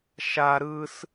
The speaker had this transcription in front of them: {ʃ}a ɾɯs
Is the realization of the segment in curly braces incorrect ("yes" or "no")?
no